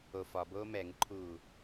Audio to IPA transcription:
o f ɒ b oː m ɛ ŋ ɯ ǃʰ uː

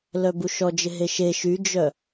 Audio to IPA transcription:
l œ b u ʃ ɔ d͡ʒ ɪ ɦ e ʃ e ʃ y d͡ʒ œ

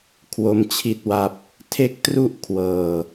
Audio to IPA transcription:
kʰ w o˦˥ m t͡ɕʰ i˥˩ t̚ w a˥˩ p̚ | tʰ e˦˥ k̚ t r u˥˩ ʔ kʰ w ɤː˧

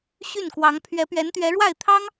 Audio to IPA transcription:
ɕ y˥˩ n k w ɑ˧˥ ŋ pʰ ɥ ɛ˧˥ p ɥ ɛ˧˥ n t̪ ɥ ɛ˧˥ ɻ w a˥˩ ɪ̯ t̪ʰ ɑ˥ ŋ

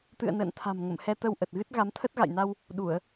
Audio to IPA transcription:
t̪ ɨ̰˧˨ ə̯ n ə̰ː˧˨ n t̪ʰ a̤˨˩ m ŋ ə̰˧˨ m h ɛ˧ t̪ ə˧ w ʔ ə˨˩ t̚ ɣ ɨ˦˥ t̚ ɣ a˨˦ m t̪ʰ ə˦˥ t̚ ɣ a̰˧˨ j n a˧ w | ɗ u˧˩˨ ə̯

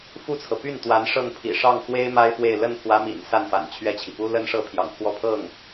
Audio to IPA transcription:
f u˥˩ t͡sʰ ɤ˩ p y˥˩ n t̪ w a˧˥ n ʂ ɤ˥˩ ŋ pʰ ḭ˨˩ ʂ ɑ˥˩ ŋ x w e˥ ɪ̯ m a˥ ɪ̯ f w e˥˧ ɪ̯ l ə˥˩ n pʰ w ä˧˥ m ḭ˨˩ n s a˥˩ n f a̰˨˩ n t͡ɕʰ ɥ ɛ˥˩ t͡ɕʰ i˩ p u˥ l ə˥ n ʂ ɤ˥˩ pʰ j ɑ̰˨˩ ŋ pʰ w ɔ˥˧ pʰ ɤ˥˩ ŋ

